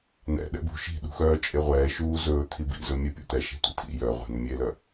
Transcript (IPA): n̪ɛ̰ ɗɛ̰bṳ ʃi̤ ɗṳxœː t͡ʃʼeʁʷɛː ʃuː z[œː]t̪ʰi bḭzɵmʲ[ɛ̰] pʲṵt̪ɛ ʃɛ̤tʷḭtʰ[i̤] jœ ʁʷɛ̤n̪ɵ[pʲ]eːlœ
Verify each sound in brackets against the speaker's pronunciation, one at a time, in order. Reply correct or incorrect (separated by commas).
incorrect, incorrect, incorrect, incorrect